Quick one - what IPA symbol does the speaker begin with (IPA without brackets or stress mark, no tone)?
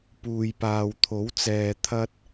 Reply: p